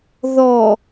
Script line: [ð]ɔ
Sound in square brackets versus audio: correct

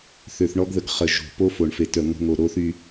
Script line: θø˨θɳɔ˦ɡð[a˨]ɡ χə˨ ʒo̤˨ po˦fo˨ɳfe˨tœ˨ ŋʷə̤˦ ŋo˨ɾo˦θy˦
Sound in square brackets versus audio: incorrect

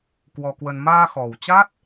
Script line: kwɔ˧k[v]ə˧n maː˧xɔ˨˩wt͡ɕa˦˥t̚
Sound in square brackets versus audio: incorrect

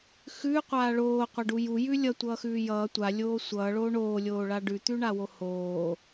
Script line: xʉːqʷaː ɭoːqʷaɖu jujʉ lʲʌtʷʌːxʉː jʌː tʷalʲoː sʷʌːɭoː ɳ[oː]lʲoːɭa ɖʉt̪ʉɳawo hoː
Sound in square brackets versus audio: correct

